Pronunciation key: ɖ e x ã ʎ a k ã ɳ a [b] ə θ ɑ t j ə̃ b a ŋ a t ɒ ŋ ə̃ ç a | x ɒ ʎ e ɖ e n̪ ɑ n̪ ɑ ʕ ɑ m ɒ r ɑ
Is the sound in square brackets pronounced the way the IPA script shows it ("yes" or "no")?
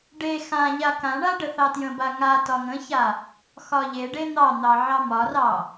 no